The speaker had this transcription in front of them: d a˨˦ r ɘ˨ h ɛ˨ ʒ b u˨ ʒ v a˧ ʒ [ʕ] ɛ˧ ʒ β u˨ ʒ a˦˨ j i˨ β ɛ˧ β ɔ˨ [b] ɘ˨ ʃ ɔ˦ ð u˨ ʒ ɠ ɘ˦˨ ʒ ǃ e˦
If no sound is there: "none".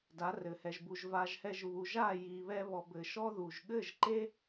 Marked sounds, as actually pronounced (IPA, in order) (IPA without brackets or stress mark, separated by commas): h, b